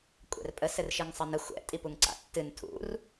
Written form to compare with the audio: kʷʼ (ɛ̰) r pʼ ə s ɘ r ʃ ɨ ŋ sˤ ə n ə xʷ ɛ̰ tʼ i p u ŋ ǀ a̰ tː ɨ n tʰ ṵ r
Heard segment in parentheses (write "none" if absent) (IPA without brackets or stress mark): ɛ̰